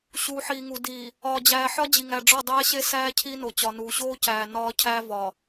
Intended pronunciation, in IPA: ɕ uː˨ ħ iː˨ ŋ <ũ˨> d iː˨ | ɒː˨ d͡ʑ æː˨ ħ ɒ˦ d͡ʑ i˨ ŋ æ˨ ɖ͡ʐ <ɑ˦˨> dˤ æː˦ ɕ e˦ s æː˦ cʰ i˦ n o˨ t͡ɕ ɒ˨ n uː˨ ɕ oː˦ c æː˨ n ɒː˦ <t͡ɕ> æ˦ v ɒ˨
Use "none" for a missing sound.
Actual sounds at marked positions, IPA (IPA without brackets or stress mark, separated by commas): u˨, ɒ˦˨, cʰ